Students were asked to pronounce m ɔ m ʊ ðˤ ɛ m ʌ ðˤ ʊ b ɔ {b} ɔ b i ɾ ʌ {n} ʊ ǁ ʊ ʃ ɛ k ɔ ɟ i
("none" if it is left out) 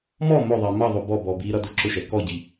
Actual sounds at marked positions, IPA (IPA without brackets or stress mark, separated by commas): b, d